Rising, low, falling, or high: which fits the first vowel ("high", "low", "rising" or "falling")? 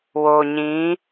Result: low